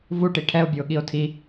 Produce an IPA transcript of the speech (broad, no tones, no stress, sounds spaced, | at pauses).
v u ʈ i ʈʰ ɛ o̯ bʲ u o̯ ɠ i o̯ tʰ i